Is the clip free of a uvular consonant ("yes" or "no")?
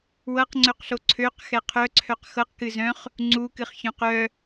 no